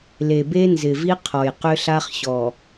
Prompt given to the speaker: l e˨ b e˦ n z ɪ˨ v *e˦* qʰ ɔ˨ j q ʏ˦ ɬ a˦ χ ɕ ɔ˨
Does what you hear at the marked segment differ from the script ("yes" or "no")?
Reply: yes